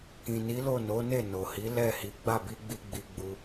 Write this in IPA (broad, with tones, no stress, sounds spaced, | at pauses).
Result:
k ĩ˨ n i˨˦ l o˦˨ n o˨˦ n e˦˨ n o˨ h i˨˦ l ɛ˦˨ h i˨˦ ɡ͡b a˦˨ b i˧ ɡ͡b i˧ ɡ͡b i˧ ɡ͡b u˧